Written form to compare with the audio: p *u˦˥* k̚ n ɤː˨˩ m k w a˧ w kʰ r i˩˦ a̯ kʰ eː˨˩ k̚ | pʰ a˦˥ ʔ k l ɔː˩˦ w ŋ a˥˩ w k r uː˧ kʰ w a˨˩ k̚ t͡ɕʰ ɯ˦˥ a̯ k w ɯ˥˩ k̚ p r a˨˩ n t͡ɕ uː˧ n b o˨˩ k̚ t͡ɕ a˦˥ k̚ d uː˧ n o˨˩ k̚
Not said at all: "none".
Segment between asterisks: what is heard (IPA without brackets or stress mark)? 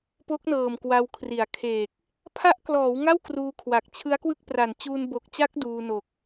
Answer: o˦˥